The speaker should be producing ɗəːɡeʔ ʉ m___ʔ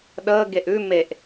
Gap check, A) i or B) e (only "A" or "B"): B